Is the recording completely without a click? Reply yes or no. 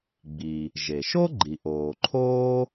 no